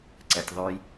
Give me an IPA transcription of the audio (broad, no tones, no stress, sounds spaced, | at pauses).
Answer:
ǀ ɛ tʲ ðˤ ʉ j